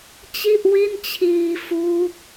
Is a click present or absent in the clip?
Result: absent